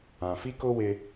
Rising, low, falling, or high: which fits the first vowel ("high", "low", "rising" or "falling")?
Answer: low